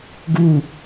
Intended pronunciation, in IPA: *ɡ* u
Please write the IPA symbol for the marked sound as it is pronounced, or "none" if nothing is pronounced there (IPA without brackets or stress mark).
ɡ